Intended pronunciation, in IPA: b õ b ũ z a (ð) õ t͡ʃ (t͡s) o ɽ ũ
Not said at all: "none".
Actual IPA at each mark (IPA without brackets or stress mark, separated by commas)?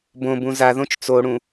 ð, t͡s